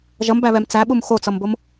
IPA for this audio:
ʒʌmbæβɛm t͡sæɓum xot͡sʌmbom

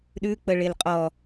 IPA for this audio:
ɗʉk͡pə ɭelqʼɔ

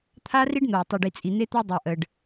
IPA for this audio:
t̪ʰa˦ri˦ɖn̪o˨w tˤi˨ɖi˨t͡sʼi˨ n̪e˦t̪a˦dˤa˨ ʔə˨ɖ

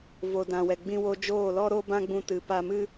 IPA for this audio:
vo˨dã˨wɛ˨ ɡ͡bĩ˧wo˧d͡ʒoː˦˨ lɔ˦ɾo˦ bã˦ɡ͡bũ˧tɨ˨ pa˧mɨ˦

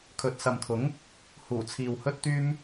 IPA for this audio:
kʰɵ˨t̚sɐ˨mt̪ʰʊ˨˥ŋ | huː˨˩t͡sʰiː˨whɵ˥t̚ t̪yː˥m

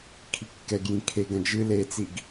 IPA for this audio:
kʰikːɛɡjĩ kʰe ɡɐ̃d͡ʒɨ let͡siɡ

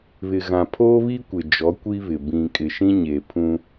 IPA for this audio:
βɪ˨ɣã˨ pʰoː˦βi˦kʷɪ˨ d͡ʒɔ˨˦kʷi˦βɪ˨ bĩ˨kʼɪ˨ʃĩ˦ɲeː˨ pʰũ˦

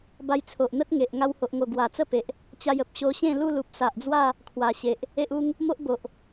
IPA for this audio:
ba˧jt͡sʰo˨ʔn̪ə˦t̚ŋe˨ʔ ŋa˧who˨ʔŋo˨˩ ɡwa˨˩t͡sə˦pe˨ʔ | t͡ɕa˧jə˨p̚ɕo˧ ɕẽ˥˧lu˥˧ lu˨p̚sa˨ʔd͡zwa˥˧ | kʰwa˨˩ɕe˨ʔ | e˦ʔu˦ŋ | mo˦ʔbo˨ʔ

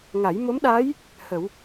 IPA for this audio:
ŋa˨˩˦jmo˧˥mɗa˧˥j | hə˨˩˦w

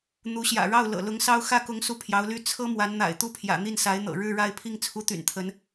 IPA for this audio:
n̪u˧˥ɕjä̰˨˩ɻɑ˥˩ʊ̯ lɤ̰˨˩ lʊ˧˥ŋsɑ˥ʊ̯ xä˥˩kʊ˧˥ŋ su˥˩pʰjɑ˧˥ʊ̯ly˥ t͡sʰɤ˥ mwa˧˥nn̪a̰˨˩ɪ̯t̪u˥˩pʰjä̰˨˩ n̪i˥˩nsa˧˥ɪ̯n̪ɤ̰˨˩ ɻɻ̩˥˧ɻa˥˧ɪ̯ pʰi˥˩ŋt͡sʰu˧˥t̪y̰˨˩n t̪ʰə˧˥n

